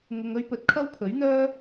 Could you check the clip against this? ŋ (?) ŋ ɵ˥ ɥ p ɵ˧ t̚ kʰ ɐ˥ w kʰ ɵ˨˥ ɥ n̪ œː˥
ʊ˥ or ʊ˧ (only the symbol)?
ʊ˧